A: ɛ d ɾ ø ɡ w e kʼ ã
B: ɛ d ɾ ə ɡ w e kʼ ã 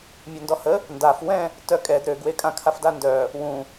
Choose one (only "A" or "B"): A